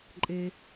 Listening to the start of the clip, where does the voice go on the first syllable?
low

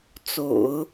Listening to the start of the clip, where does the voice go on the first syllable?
low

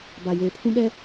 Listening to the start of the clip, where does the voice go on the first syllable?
low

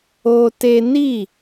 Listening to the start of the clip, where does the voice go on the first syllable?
high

